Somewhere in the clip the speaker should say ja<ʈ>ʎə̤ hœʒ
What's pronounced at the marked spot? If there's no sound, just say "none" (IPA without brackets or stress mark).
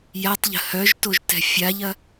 tˤ